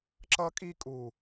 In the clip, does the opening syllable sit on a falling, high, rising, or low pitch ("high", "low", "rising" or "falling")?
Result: high